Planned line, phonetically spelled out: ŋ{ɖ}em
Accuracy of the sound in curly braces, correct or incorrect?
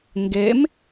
incorrect